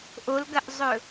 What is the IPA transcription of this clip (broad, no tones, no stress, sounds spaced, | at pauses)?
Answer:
ʔ o l ɡ ɐ ʔ zˤ ɵ